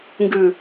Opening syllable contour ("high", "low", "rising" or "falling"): low